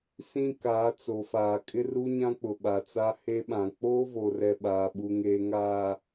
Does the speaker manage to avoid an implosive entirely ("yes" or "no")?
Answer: no